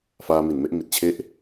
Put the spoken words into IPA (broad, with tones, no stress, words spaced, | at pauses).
faː˧mi˨˩nme˥˩ʔ mi˨˩t̚t͡ɕʰe˥˩ʔ